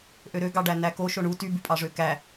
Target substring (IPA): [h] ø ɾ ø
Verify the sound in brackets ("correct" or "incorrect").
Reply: incorrect